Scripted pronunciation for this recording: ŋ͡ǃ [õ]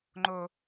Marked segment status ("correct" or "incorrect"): incorrect